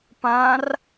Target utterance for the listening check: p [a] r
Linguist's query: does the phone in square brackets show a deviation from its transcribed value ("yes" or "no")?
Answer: yes